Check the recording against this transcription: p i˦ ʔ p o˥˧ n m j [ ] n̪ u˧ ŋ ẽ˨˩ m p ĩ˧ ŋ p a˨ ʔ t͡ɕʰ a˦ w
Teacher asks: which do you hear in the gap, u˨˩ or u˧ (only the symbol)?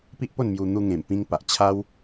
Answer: u˧